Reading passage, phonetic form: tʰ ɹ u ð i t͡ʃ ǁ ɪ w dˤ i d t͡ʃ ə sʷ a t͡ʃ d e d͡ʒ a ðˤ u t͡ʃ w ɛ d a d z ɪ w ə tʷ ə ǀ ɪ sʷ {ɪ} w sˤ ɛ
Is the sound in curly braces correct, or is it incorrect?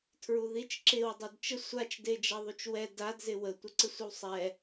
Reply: correct